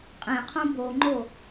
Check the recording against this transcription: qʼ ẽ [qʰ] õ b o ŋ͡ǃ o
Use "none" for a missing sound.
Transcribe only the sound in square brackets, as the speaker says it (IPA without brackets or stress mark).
qʰ